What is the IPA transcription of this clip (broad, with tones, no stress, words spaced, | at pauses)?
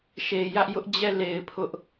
ʃe˨jä˦ʔjʊ˦ʔ d͡ʑɛ˦˨le˨ɪ̯ pʰʊ˦ʔ